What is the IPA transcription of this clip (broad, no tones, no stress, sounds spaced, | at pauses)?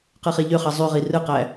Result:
q ɯ χ e ʎ ø χ ɑ zˤ y ʁ i r ɯ q æ